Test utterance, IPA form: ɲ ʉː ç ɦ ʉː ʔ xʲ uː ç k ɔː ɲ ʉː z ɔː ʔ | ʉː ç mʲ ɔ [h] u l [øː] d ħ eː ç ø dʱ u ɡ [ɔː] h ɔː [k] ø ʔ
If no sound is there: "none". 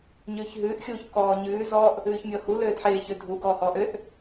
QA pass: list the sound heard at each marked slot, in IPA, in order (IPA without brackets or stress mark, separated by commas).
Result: h, øː, ɔː, ʔ